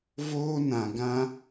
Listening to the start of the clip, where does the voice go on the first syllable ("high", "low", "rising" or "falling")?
high